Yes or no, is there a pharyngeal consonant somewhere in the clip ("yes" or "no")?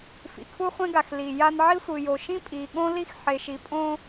yes